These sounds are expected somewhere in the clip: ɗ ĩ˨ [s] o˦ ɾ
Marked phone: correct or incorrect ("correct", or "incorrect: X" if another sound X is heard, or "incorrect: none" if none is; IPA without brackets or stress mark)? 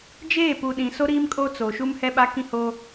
correct